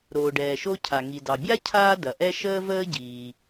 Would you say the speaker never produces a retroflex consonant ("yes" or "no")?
no